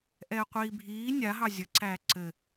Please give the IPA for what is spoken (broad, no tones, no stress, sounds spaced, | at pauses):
ʔ ɛː qʷ iː bʱ iː nʲ a ɦ ɑ zʲ ə ǀ æː ǀ ɘ